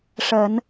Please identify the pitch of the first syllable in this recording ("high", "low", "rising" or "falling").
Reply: low